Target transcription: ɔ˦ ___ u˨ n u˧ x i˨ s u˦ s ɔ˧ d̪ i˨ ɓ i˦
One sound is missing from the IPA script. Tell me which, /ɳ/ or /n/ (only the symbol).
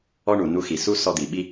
ɳ